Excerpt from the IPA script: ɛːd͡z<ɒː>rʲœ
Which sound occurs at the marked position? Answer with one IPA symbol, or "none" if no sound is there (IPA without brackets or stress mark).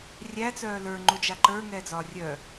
ɒː